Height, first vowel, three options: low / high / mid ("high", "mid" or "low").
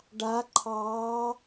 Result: low